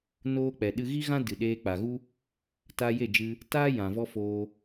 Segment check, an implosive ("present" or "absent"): present